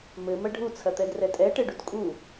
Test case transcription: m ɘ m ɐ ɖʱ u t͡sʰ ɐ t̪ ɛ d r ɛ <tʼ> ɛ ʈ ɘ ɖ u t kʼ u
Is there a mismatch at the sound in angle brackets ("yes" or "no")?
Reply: no